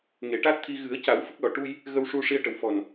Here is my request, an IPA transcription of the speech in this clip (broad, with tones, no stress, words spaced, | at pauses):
ŋe˨˩˦ʈa˦˥t̚t̪ʰi˧ ɣɨ˨˩˦ə̯ca˨˩˦w fə˦˥k̚lɔ˨˩ ʈu˧j | ɣə˧wʂu˧ ʂi˧ə̯ʈə˨˩˦w fɔ˨˩n